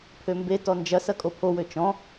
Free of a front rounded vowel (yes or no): no